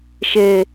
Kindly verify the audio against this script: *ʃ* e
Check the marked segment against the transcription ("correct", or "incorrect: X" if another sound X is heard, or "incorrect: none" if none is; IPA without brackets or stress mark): correct